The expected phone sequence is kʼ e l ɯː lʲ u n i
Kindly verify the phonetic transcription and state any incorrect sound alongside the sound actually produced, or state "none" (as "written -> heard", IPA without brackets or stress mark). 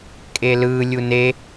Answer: i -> e